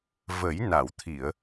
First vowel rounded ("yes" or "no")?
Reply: no